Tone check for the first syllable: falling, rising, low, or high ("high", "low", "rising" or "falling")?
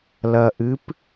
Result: low